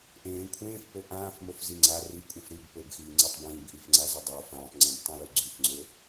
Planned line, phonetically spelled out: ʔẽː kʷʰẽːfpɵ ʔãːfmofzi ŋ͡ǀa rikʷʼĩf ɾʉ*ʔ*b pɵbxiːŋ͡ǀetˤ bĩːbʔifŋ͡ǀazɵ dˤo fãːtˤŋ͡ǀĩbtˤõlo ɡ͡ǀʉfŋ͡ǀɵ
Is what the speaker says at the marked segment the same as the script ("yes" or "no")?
no